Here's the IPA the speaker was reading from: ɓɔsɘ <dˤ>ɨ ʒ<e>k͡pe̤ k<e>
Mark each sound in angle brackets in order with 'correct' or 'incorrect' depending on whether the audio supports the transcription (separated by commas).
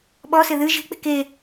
incorrect, incorrect, correct